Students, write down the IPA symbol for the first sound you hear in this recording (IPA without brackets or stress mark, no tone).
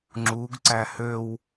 ŋ͡ǁ